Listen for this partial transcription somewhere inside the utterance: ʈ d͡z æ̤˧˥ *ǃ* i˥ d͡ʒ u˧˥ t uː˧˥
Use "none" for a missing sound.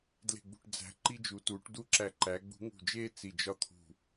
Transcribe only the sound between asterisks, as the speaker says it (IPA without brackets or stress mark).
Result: ǃ